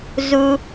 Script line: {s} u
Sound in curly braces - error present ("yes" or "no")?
yes